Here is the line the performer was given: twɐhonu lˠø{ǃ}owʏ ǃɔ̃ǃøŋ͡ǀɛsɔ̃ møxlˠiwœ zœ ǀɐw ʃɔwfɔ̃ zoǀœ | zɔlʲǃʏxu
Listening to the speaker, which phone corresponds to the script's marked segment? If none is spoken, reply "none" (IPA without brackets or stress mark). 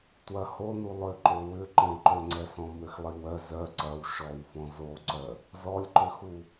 ǃ